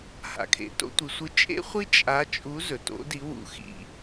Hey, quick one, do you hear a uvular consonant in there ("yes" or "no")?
yes